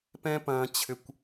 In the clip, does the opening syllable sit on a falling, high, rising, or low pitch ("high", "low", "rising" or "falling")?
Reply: high